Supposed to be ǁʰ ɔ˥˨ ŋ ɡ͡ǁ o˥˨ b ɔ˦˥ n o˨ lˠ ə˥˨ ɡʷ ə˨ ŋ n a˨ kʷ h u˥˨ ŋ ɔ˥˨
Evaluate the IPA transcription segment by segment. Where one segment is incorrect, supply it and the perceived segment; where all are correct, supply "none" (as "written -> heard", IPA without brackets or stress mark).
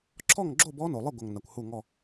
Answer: none